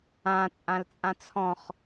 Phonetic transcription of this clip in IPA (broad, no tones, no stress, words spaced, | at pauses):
ã t͡sʼãlt͡sʼãt͡sʰɔ̃χ